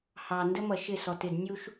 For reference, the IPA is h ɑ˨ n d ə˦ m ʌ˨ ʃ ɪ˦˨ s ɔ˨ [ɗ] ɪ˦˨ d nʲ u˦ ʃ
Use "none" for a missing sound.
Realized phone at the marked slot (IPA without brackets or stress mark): t